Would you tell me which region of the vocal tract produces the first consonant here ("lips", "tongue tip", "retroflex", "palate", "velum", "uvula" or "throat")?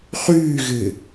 uvula